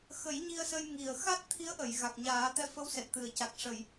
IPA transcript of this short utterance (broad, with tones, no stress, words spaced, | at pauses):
xə˨˩˦j ɲi˧ə̯sə˧jŋi˨˩ə̯ xa˦˥t̚t̪ʰi˧˥ə̯ʔə˨˩˨j ɣa˨˩k̚ɲaː˨˩˦t̪ɛ˧ fə˧˥wsɛ˨˩t̚t̪ɨ˨˩˨ə̯ca˨˩k̚ ʂə˨˩˨j